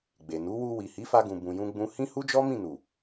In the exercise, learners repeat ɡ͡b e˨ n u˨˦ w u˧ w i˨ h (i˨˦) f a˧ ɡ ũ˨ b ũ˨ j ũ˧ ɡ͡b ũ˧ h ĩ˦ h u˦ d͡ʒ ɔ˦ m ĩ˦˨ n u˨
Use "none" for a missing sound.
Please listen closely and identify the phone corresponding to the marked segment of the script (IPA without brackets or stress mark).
i˨˦